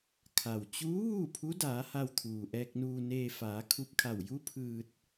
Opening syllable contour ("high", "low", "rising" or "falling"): low